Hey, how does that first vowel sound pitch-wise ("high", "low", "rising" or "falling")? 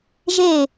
falling